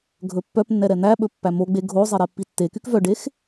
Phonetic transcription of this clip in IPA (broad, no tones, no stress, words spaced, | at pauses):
ɡʱɵpːœpnːɛ ɾɛn̪æɓɵ pːæmoɡ͡be ɡʱozˤe ɾepːitːekyk vœɖex